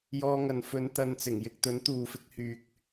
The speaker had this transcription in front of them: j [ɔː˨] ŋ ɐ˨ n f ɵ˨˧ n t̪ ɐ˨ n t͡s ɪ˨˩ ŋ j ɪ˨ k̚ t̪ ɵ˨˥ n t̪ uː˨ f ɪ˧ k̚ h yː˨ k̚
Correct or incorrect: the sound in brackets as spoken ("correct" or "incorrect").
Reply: incorrect